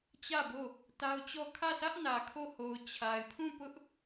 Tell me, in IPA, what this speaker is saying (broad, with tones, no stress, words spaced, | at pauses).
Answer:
t͡ɕä˦˨bo˦˨ | ta˦ʊ̯t͡ɕɔ˦˨ kʰä˦˨sä˦ʔnä˨ kʰo˦˨ ho˨ʊ̯ t͡ɕʰa˨ɪ̯pʰũ˦˨pʊ˦ʔ